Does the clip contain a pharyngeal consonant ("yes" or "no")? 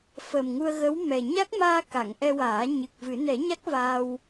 no